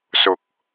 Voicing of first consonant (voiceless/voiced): voiceless